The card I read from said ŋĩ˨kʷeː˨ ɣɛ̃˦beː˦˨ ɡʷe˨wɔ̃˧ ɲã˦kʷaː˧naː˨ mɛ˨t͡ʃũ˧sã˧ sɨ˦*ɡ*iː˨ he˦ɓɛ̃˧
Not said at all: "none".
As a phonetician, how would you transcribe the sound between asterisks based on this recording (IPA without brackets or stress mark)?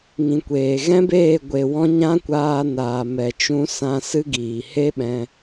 ɡ